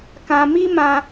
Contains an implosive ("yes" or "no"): no